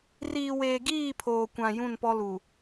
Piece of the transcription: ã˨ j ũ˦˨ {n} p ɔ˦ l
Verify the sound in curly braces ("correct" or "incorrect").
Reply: correct